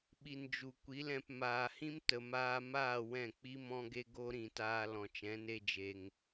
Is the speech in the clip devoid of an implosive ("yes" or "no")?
no